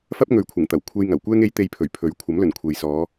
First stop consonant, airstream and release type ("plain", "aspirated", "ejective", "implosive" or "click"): plain